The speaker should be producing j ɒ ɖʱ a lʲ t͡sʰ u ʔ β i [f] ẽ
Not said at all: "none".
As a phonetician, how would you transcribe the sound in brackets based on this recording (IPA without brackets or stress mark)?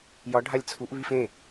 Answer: f